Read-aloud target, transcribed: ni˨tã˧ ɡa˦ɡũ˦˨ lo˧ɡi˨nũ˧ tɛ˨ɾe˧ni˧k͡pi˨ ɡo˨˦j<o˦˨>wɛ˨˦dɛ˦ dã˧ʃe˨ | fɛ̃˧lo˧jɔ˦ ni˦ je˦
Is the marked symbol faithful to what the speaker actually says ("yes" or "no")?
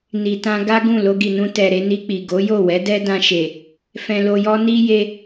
yes